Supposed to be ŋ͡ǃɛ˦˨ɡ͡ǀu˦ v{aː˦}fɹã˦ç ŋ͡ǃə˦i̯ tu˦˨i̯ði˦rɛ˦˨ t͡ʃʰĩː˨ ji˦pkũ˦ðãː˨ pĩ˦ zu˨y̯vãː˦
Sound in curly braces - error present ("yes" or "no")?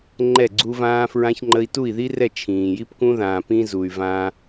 yes